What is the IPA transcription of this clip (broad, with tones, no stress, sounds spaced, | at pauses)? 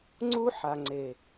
ŋ͡ǀ u˦ ħ a˨ ŋ͡ǀ e˨